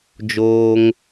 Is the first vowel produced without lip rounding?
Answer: no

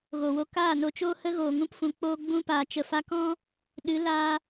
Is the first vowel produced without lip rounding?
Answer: no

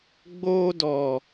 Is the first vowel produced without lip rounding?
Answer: no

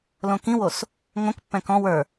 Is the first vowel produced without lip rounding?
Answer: no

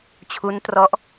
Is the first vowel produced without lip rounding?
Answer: no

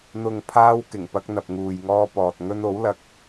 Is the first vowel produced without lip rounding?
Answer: no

